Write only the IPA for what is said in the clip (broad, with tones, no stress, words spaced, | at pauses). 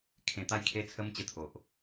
kʰẽ˨˩t̪a˥˧j kʰe˦t͡sʰə˦m t͡ɕə˦t̪ʰo˨ʔ